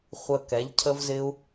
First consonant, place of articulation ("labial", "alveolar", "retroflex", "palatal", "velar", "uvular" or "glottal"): uvular